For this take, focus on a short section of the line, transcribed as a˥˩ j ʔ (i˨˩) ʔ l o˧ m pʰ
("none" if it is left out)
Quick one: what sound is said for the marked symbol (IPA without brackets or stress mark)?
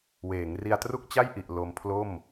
i˨˩